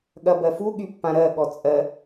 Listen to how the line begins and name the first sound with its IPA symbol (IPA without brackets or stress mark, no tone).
ɠ